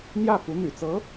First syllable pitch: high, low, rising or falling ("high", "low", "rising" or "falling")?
falling